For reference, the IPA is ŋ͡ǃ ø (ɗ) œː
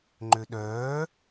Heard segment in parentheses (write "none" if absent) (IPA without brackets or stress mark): ɗ